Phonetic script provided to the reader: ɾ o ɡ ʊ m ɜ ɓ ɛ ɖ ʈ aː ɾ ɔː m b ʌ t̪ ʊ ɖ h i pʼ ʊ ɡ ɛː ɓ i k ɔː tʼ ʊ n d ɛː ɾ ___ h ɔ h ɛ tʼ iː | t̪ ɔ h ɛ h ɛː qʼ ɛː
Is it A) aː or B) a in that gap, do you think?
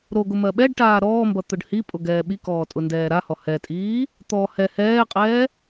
B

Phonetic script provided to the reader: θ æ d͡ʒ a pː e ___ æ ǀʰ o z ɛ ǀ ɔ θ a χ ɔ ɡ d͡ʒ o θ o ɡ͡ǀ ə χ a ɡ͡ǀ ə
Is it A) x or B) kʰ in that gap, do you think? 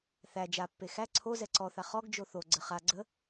A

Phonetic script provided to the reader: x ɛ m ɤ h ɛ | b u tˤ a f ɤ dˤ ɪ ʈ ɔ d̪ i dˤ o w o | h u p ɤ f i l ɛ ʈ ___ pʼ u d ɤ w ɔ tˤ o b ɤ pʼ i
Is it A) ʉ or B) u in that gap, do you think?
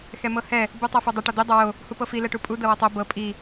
B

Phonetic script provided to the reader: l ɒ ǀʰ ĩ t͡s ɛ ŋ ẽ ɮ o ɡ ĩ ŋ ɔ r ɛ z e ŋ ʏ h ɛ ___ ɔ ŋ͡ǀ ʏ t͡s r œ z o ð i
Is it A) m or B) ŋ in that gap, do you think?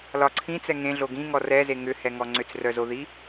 B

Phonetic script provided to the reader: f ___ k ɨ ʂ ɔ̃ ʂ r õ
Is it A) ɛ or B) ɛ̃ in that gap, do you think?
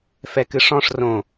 A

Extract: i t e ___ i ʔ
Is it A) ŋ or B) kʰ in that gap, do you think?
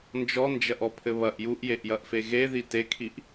B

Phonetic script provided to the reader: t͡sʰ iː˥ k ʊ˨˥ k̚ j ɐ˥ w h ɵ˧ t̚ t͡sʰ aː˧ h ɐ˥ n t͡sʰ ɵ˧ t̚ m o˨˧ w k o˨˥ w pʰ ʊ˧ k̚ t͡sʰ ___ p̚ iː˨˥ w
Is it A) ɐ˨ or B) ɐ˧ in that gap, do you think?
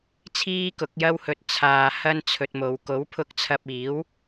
B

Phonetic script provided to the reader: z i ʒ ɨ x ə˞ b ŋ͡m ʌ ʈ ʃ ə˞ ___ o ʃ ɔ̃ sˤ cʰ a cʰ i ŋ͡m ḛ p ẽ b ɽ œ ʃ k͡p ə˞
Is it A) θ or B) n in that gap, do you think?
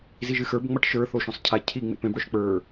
A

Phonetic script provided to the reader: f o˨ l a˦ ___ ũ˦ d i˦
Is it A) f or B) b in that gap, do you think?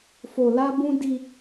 B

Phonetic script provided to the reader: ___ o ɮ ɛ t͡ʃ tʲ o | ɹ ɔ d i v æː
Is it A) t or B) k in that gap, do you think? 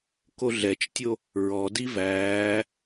B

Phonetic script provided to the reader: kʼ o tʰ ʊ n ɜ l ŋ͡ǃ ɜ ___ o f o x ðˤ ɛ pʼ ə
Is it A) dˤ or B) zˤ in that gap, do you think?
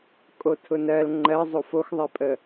B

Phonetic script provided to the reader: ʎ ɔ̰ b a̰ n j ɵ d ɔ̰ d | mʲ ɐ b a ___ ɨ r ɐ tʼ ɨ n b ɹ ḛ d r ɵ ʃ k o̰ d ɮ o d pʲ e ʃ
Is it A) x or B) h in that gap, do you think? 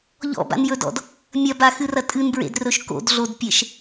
A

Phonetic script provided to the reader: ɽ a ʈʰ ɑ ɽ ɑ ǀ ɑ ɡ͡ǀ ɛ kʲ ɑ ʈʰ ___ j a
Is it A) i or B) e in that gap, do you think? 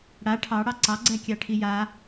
A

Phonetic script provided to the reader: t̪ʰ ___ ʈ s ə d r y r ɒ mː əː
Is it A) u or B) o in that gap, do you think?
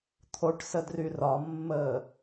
B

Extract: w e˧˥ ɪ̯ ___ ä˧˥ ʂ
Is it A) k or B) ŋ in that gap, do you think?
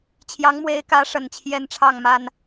A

